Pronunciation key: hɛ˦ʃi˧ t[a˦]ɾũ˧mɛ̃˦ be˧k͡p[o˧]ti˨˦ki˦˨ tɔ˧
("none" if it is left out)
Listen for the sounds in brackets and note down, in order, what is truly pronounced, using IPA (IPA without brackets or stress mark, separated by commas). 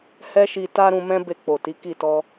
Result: a˦, o˨